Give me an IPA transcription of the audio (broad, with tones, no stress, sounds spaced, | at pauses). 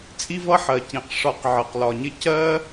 t͡sʼ i˥ v ʌ˥ ħ ɜ˩ c ĩ˩ q ʂ ɒ˨ q ʕ ɜ˩ q l ɒ˩ ɲ ɪ˦ c ɜ˥